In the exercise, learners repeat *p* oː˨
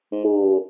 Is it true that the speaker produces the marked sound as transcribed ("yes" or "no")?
no